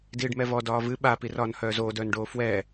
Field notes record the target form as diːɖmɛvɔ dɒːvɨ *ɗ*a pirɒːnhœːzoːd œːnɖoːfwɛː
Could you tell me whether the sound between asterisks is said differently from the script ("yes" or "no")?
yes